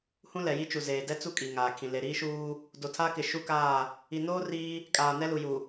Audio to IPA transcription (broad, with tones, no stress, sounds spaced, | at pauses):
h ũ˦ l ɛ˨ j i˦ t͡ʃ u˨ z eː˨ d ɛ˦ t͡s u˦ kʼ iː˨ ŋ aː˨ kʰ ĩ˨ l e˨ ɾ iː˦ ʃ uː˦ | d o˨ tʰ a˦ k ɪ˨ ʃ u˦ k aː˦˨ | i˨ n oː˦ r iː˦ | kʼ aː˨ n ɛ˦ l u˨ j u˨